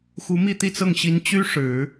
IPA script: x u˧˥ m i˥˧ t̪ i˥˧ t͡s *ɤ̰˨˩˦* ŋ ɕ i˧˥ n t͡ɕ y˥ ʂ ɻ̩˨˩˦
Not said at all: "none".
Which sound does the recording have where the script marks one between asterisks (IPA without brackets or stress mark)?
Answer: ɤ˥˩